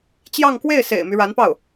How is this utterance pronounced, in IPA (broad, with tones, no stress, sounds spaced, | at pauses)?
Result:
t͡ɕ j ɑ˥˧ ŋ k w e˥˩ ɪ̯ s ḛ˨˩ ɪ̯ m y˦ ɻ a˧˥ n p ɑ˥˩ ʊ̯